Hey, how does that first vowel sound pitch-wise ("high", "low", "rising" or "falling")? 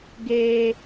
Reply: high